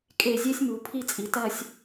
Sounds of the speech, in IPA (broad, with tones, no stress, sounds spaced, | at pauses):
kʼ e˧˩ zʲ e˥ sʲ m u˩˧ pʰ i˥˧ t͡sʼ i˩˧ t ɐ˥˧ sʲ